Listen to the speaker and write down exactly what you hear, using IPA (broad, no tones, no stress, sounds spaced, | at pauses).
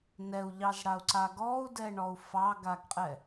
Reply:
n ɛ u̯ ʎ ɑ z ɽ a u̯ ǀ a ɡ ɔ u̯ d ɛ ɳ ɔ u̯ f ɑ ɡ a ɡ qʼ ɛ